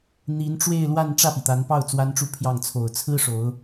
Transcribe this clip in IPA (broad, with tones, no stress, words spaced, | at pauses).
n̪i˧˥nʈ͡ʂwe˥˧ɪ̯lwa˥˧n ʈ͡ʂä˥˩pi˩t̪a˧˥npɑ˥˩ʊ̯ t͡swa˥nʈ͡ʂu˥˧pʰjɑ˥˩ŋ t͡sʰo˨˩ʊ̯t͡sʰɹ̩˥ ʂo˧˥ʊ̯